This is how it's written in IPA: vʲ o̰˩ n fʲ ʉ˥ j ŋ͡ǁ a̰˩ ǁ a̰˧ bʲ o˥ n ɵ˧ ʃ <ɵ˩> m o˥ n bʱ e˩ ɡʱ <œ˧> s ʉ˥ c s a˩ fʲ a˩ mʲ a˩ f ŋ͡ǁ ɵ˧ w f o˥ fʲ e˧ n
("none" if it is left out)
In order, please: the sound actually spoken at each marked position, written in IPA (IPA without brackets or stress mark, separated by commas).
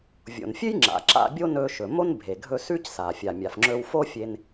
ɵ˩, ɵ˧